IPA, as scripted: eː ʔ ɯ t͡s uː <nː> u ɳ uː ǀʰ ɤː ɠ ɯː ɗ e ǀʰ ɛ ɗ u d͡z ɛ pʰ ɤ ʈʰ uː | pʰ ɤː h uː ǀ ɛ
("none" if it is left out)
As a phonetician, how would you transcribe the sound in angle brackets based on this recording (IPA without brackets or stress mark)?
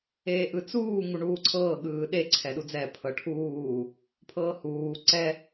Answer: ŋ